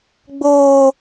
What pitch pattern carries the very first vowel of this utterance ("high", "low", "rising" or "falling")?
high